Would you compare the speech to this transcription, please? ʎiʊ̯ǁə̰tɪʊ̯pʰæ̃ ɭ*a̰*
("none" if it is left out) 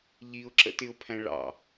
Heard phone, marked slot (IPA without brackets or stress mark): ɑ̰